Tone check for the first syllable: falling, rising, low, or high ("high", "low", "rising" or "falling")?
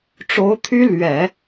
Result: rising